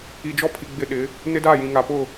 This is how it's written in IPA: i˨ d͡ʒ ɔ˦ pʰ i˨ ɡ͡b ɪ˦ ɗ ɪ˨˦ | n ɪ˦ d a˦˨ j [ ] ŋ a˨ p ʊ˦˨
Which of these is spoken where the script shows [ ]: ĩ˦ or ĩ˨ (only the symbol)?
ĩ˨